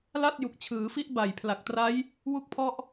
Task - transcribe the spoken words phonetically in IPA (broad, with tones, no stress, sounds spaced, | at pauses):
l a˥˩ t̚ j u˨˩ k̚ t͡ɕʰ ɯː˩˦ f i˦˥ ʔ b a˨˩ j pʰ l a˨˩ k̚ t r a˦˥ j | w u˥˩ k̚ pʰ ɔ˦˥ ʔ